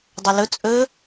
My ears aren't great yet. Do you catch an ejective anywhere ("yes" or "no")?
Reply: yes